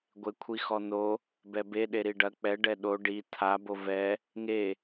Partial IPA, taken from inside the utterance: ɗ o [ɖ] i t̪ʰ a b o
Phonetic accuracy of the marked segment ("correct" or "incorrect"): correct